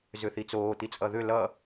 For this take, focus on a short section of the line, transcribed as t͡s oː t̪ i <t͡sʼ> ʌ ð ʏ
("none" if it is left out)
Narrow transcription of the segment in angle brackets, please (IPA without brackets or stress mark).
t͡sʼ